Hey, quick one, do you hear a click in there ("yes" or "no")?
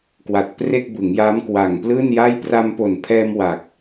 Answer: no